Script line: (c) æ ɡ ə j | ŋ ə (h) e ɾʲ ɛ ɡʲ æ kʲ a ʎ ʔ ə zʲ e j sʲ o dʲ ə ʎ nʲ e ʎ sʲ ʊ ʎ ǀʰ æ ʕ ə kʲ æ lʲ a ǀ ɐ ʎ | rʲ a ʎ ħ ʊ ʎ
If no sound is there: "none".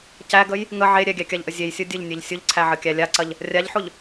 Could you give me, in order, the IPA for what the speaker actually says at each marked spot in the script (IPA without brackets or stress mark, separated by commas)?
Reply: c, ʕ